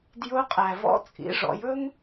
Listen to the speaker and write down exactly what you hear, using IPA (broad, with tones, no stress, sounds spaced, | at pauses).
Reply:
d j ʊ˧˥ qʼ æ˩ v ɔ̰˧˥ t͡sʼ ḭ˩˧ ʐ ɔ̰˩˧ j ɵ˥ ŋ